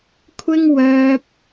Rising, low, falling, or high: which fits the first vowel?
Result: high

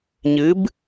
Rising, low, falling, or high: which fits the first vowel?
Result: rising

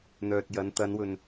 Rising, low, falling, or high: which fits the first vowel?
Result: low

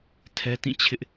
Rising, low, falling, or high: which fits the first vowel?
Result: high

